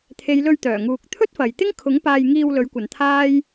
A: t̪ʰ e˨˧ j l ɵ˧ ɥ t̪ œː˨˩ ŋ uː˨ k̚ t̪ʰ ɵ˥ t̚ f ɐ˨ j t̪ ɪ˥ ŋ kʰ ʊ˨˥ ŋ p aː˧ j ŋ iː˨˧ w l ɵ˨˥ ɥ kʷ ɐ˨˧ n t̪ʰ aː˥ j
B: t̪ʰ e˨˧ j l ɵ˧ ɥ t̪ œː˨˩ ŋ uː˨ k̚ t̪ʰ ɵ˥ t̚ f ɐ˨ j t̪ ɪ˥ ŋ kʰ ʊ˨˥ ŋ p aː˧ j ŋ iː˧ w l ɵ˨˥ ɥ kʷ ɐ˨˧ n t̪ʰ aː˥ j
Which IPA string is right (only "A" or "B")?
B